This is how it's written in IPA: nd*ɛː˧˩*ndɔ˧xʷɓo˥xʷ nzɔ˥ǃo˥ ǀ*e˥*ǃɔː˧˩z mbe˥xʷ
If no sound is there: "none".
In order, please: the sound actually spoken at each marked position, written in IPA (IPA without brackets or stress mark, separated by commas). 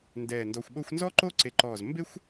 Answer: ɛː˧˩, e˧